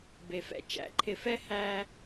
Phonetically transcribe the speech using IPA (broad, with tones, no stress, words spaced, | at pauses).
be˨fɛ̰˦ t͡ʃæ̰˨˦ǃʰɪ˨fɛ˦ hæ˦